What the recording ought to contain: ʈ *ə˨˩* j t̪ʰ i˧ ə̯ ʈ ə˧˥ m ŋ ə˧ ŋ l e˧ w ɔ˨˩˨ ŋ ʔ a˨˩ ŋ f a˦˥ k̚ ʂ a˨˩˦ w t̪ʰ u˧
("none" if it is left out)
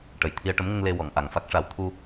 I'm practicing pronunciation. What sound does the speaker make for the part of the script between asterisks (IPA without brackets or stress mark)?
ə˨˩